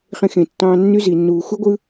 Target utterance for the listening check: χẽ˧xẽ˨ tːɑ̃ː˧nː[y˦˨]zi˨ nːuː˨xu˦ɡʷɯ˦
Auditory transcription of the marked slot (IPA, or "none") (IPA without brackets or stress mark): y˦